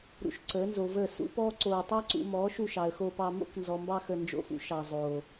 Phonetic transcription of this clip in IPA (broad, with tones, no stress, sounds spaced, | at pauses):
ɾ ṵ˧ ʃ ǀ əː˨˦ n z o˨ v əː˦˨ s ṵ˦ p ɔː˦ ǀ oː˧ tˤ ɑ˦ ǀ ṵ˧ m ɔː˨˦ ʃ u˧ ʃ ɑ˨ ə̯ x oː˧ p ɑ˧ m o̰˦ k n z ɔ˨ m b ɑ˧ x ə˧ n d͡ʒ o̰˧ f ṵ˨˦ ʃ ɑ˨ zˤ oː˨